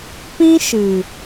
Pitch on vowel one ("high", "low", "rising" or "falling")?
high